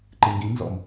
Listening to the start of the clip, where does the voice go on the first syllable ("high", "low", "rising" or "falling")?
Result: low